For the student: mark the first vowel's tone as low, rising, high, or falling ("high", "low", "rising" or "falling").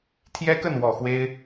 high